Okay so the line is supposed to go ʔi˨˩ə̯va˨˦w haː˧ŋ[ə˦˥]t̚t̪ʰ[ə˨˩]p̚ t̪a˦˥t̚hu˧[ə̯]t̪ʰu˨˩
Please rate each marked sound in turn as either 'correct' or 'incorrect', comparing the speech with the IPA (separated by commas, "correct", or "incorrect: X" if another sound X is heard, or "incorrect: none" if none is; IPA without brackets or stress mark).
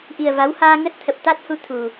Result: correct, correct, incorrect: none